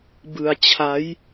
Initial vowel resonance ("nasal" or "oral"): oral